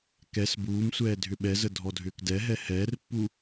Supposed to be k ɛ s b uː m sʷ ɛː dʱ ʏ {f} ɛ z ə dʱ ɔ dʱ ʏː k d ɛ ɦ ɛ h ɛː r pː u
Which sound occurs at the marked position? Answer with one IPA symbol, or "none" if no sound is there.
ɓ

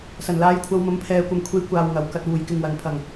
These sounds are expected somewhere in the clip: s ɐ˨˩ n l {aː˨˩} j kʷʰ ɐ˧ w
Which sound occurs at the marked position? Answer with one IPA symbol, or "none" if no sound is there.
aː˨˥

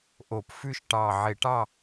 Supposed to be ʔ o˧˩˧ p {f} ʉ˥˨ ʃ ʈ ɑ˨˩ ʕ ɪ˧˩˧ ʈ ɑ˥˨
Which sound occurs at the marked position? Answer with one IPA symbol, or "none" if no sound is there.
f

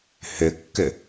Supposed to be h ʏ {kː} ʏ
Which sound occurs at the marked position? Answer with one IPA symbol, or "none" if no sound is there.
kː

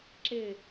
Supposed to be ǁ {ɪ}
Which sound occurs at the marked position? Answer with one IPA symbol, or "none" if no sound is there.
ɪ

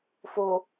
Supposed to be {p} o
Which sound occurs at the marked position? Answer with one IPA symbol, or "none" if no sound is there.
f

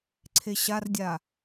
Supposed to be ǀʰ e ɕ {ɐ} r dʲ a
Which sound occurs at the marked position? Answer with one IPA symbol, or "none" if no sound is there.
a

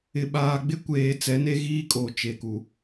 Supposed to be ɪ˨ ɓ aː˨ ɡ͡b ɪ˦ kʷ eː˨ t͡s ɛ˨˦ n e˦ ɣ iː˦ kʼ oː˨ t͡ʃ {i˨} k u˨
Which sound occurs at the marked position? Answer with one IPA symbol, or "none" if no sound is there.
e˨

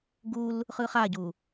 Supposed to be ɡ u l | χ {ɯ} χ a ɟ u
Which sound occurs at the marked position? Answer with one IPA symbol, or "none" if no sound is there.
ɯ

